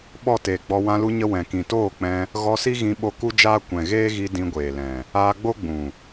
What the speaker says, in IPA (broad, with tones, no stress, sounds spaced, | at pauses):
ɓ ɔ˦˨ t eː˨ ɡ͡b ɔ˧ w ã˧ l u˧ ɲ ə˧ w ɛ̃˨ k ĩ˨ t oː˦˨ k͡p ɛ̃˧ | ɣ ɔ˧ s i˦ ɣ ĩ˧ ɓ o˧ k u˦ d͡ʒ aː˦ kʷ ɛ̃˨ ɣ eː˦ ɣ i˧ d ĩ˧ ɡʷ eː˨ l ɛ̃˨ | aː˧ ɡ͡b o˦ ɡ͡b ũ˨